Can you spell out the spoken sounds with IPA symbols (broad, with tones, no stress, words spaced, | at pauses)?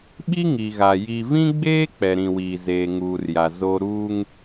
ɓi˦ ŋi˨ɣa˨ ji˨vĩ˦ɡ͡beː˦ k͡pɛ˨ɾĩ˨wiː˨zeː˨ ŋuː˨rja˨ zo˦ ɾuː˦ŋ